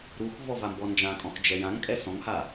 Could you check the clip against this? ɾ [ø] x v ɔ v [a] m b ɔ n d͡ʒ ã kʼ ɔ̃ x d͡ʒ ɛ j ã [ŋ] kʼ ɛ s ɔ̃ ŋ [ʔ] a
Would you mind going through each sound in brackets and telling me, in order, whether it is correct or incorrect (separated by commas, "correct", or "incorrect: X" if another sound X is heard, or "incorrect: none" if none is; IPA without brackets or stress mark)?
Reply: incorrect: u, correct, correct, incorrect: h